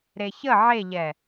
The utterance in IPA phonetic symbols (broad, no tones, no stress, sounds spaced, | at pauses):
ɾ e ç ə ʕ e ʎ ɛ